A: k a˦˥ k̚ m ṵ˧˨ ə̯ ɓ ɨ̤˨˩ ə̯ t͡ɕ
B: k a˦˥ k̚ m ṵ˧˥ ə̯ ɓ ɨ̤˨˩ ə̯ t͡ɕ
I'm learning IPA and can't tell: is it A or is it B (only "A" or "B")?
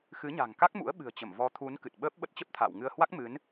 B